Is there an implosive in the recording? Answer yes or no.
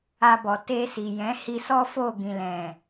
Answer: no